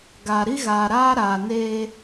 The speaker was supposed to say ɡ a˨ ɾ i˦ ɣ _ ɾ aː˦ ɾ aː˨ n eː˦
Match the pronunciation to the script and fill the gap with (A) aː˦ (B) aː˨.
B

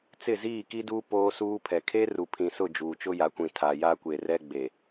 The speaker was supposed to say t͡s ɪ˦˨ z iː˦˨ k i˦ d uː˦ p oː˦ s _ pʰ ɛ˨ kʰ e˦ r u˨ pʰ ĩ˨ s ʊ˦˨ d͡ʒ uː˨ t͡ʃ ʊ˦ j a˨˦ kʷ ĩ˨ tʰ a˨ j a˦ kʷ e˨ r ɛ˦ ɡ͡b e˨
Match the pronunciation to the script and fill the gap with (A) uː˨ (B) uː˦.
B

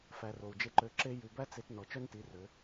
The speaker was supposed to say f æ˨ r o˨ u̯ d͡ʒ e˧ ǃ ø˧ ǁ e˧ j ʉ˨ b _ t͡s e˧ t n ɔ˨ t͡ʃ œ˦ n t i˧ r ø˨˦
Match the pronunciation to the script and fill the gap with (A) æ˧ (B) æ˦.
B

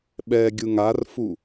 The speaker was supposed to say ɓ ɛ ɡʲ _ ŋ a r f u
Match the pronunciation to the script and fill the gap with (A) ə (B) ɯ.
B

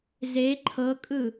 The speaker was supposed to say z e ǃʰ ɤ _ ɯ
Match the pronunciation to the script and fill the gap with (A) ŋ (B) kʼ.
B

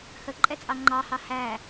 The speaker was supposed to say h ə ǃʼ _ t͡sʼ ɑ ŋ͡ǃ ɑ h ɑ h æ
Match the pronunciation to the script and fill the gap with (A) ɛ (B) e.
A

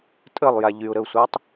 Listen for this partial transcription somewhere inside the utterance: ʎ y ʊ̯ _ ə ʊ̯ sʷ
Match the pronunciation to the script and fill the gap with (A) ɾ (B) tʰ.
A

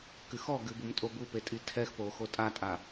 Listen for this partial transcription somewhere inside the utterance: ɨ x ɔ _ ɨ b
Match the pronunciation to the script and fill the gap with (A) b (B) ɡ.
B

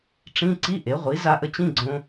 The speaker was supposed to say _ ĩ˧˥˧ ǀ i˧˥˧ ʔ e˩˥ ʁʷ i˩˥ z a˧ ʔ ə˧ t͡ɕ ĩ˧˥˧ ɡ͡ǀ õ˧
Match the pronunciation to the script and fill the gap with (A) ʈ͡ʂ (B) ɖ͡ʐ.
A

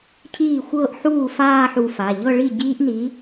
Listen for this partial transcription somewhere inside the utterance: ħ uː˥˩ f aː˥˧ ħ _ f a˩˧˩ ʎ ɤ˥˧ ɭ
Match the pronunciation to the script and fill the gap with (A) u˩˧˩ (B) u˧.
B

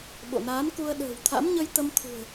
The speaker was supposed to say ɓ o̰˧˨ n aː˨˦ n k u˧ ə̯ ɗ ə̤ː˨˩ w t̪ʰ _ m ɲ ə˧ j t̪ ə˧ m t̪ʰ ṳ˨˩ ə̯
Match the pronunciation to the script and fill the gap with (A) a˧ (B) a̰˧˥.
B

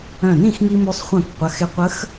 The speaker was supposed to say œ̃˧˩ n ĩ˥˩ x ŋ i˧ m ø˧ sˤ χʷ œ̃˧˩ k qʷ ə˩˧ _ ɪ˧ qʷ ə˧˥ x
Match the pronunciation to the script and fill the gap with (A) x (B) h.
A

